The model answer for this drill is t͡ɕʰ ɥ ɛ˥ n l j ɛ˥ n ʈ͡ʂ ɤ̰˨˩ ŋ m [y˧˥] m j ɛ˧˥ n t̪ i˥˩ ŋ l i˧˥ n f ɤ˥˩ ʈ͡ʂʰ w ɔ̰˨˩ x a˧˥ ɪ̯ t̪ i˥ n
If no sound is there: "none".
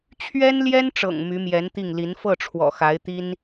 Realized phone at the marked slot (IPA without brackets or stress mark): y˧˥